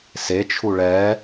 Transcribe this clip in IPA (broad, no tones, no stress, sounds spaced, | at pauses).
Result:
s e t͡ʃʰ u ɭ ɛ